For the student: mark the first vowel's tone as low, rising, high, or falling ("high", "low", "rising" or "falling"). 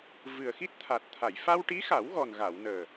low